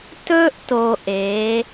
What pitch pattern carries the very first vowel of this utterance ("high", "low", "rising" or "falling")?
high